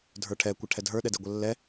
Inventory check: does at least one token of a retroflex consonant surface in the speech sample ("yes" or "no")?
yes